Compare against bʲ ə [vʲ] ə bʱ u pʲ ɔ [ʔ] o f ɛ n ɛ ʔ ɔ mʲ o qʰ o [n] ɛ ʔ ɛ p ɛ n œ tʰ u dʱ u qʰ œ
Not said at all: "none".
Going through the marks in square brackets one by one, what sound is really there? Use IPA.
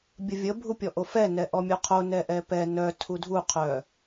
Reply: vʲ, ʔ, n

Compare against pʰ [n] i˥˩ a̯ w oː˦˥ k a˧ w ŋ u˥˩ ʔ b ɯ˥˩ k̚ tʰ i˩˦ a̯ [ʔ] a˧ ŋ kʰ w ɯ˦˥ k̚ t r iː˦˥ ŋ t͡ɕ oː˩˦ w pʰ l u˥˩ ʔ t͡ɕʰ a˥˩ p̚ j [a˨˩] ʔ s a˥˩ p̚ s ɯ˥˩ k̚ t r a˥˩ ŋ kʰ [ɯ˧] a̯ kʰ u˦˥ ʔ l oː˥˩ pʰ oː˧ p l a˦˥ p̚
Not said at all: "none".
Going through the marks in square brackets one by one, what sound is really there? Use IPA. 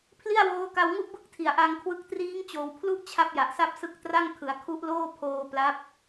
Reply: l, ʔ, a˨˩, ɯ˩˦

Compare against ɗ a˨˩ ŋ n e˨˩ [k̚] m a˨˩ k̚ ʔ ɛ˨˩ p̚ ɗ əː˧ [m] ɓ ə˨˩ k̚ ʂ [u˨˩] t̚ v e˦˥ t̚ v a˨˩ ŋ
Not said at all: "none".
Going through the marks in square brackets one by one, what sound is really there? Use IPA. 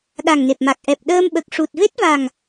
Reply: p̚, m, u˨˩

